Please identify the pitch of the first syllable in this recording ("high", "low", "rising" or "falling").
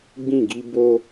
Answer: falling